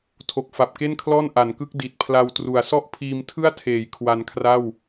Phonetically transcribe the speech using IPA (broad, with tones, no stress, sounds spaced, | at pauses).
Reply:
tʰ o˨˩ k̚ f a˨˩ p̚ k e˥˩ n kʰ l ɔː˥˩ n ʔ a˩˦ n k ɯ˦˥ k̚ d i˨˩ t̚ pʰ l a˧ w t r u˨˩ a̯ s ɔ˥˩ ʔ pʰ iː˧ m tʰ ɯ˥˩ a̯ tʰ eː˩˦ j kʰ w a˧ n kʰ r a˥˩ w